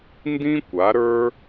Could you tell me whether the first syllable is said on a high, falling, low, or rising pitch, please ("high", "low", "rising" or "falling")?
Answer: high